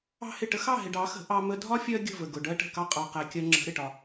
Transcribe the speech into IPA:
ɑ̤˦hɪ˦˨ ʈə˧ xɑ˦˨ɦɪ˨ɖɑ˨˦xə̤˨˦ ʔɑ˧ mə˧dʱɒ˦ fʲɜ˦ɡʲə̤˦˨və˨ ɡʊ˨ɖɜ˦ʈə̤˦˨kɑ˦ qʼɑ˧qæ˧ kʲɜ˧ŋ͡ǁə̤˨˦ ɾɪ˨ʈɒ˧

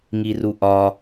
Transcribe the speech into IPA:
ŋiruʔɒ

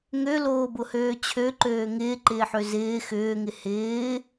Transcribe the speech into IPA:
ŋøloːbʊhøː t͡ɕʰøǃøː ŋɪːǃɪːħø zɪː xʏːŋɪ hɪː

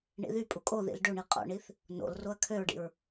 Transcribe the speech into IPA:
ɳḭðypʼu kʼoðḭl ɖøɳi qʼo̰ɳiθ | no̰l roɐ̯kʰøɹɖḭɹ

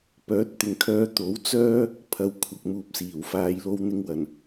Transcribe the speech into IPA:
pœː˨˥t̚t̪ɪ˨ŋkʰœː˧ t̪o˨˥w t͡sœː˥ | pʰɐ˨˧wkʷʰɐ˨k̚ muː˨p̚siː˨˩wfaː˨˧j lo˧wn̪ɪ˧ŋwɐ˨˩n

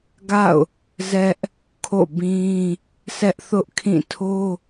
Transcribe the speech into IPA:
ɡa̰˦˨ʊ̯ | zɛ˦ʔ | kʰo̰˦˨bĩ˦ | sʰɛ˦ʔθʊ˦ʔkʰĩ˦˨ tʰo˦

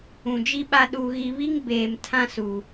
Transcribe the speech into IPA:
ũ˨d͡ʒi˦ɓa˦ ɗu˨ɣi˨βi˦ŋ beː˨m tʰã˦su˨

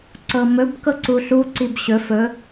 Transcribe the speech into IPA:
ǀɤmɵb kɤǀuɬu ǀibɕɵ fɵ

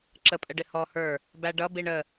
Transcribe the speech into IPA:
ǁəpʼəɖɪ hɔ hə˞ | bæɖʌ biɳə

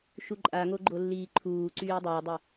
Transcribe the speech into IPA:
ʃuǃʼaŋo ɡ͡ǃolːiːǃʰuːǀyː dˤəːdˤɪ

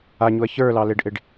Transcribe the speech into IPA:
aɲuɐ̯ çə˞lɑleɖʔeɖ

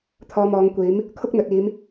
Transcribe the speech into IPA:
t̪ʰɔː˧mɔː˨˧ŋkʷiː˨˥m | kʰʊ˥k̚n̪ɵ˨t̚iː˨˧m

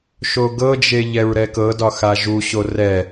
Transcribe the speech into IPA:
ʃoɡɤd͡ʒe ʎɛɹɾɛkɤdɒ xaʒuɕo rɛ

